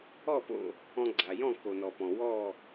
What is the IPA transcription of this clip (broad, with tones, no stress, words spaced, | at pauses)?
ɔ˥˨po̰˥˨ | ɔ̃˧ɡ͡ǀa˩jɔ̃˥˨ ko˩nɔ˩pɔ̃˩ wɔ˥˨